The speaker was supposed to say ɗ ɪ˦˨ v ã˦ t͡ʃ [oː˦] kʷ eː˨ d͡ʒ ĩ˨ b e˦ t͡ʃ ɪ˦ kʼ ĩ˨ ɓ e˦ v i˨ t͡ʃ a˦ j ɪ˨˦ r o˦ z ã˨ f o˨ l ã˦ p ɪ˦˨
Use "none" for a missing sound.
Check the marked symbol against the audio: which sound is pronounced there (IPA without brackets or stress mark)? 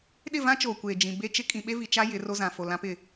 oː˨